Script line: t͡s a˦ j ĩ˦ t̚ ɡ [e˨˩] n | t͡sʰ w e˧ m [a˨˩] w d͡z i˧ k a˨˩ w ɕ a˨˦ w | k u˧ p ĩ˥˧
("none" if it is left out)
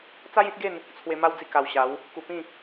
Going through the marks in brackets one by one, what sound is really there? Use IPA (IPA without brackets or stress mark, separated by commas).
e˥˧, a˦